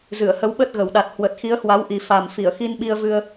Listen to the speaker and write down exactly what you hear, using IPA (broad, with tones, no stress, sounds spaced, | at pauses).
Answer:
z ɨ˧˩ ə̯ h ə˨˦ w ɓ ə˦˥ t̚ ɣ ə˨˩ w ɗ a˨˩ t̚ h w ə˨˩ t̚ x i˨˦ ə̯ h w a˨˦ w ʔ i˨˩ f a˨˩ m f i˧˩ ə̯ x i˧ n ɓ i˧ ə̯ v ɨ˧ ə̯